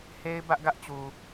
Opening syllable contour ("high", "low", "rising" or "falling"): high